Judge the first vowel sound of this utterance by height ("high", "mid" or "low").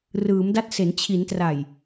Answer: high